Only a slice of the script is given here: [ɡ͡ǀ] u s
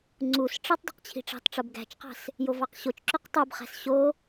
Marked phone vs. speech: incorrect: ŋ͡ǀ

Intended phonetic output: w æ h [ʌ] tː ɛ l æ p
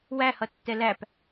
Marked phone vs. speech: correct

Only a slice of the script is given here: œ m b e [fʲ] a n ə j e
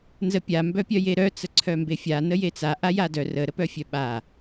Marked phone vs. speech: correct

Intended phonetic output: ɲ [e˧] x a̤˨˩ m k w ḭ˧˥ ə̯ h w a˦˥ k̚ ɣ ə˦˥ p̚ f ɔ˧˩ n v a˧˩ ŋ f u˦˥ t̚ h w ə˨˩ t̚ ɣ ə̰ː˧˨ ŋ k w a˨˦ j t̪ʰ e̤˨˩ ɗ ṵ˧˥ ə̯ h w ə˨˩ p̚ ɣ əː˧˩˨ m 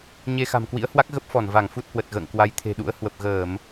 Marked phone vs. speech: correct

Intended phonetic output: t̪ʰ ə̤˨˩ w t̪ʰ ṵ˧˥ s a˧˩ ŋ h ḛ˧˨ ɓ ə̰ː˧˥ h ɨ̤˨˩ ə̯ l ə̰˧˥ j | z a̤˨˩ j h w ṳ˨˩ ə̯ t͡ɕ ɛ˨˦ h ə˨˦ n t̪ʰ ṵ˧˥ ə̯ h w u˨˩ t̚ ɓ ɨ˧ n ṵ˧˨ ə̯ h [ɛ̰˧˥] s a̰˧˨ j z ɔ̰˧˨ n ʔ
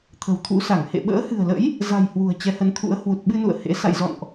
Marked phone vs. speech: incorrect: ḛ˧˥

